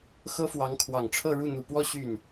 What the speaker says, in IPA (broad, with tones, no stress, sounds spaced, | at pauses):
x ɤ˥ f w ɑ˧˥ ŋ kʰ w ɑ˨˩ ŋ ʈ͡ʂʰ ɤ˥˧ ɻ u˥˩ n̪ u˨˩ p w ɔ˥˧ ɕ y˥˩ n